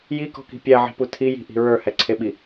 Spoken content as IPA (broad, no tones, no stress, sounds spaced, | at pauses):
j i k ɔ̤ k i̤ pʲ æ ʕ i̤ p u tʰ i j i̤ ʔ i̤ ɹ ə˞ h ɛ ǀʰ e ɓ i